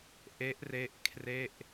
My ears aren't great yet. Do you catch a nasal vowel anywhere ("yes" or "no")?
no